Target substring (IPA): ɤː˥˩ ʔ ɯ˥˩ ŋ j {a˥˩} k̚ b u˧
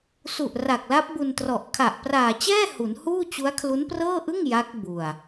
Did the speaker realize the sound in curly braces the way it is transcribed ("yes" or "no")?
no